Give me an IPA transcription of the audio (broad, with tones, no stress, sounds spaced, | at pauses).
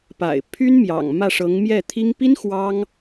p a̰˨˩ ɪ̯ pʰ y˥ n m j ɑ̰˨˩ ŋ m ä˥˩ ʂ ɤ˧˥ ŋ m j ɛ˥˩ t̪ʰ i˥ ŋ p i˥ n x w ɑ˥ ŋ